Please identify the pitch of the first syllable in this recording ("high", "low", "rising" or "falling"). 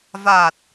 low